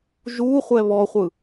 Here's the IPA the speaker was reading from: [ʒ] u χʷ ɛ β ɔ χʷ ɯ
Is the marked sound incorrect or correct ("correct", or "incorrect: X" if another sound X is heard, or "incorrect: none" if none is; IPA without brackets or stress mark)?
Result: correct